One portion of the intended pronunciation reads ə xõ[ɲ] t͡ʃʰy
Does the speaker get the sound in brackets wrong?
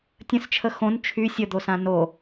yes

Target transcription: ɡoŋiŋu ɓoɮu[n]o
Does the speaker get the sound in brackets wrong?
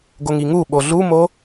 yes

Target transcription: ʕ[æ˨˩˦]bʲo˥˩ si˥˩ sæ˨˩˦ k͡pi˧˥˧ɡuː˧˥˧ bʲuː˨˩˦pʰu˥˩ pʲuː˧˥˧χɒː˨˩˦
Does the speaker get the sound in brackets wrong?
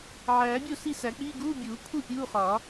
yes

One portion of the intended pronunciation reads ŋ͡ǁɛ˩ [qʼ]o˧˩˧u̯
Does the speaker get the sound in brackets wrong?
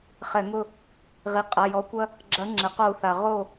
yes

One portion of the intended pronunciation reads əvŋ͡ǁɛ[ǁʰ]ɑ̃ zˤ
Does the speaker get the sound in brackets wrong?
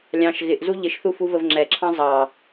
no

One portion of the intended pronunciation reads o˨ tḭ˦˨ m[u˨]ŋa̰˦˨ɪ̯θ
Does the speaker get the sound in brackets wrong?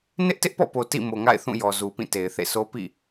yes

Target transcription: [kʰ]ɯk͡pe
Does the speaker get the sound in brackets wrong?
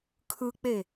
no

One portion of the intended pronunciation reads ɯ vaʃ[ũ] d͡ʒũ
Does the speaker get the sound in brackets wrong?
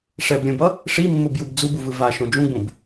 yes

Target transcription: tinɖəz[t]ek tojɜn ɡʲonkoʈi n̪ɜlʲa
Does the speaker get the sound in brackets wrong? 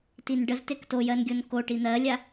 no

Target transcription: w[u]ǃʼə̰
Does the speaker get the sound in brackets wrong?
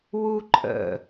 no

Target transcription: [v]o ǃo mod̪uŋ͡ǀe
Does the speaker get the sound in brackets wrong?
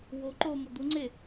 yes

